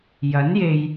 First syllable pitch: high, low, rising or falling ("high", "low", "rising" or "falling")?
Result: rising